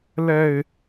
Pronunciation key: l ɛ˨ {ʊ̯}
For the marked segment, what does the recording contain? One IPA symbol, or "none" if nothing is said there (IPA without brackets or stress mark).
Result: ɪ̯